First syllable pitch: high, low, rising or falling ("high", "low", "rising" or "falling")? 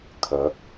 rising